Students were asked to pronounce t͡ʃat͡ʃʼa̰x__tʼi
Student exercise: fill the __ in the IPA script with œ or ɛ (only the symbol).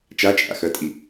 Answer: œ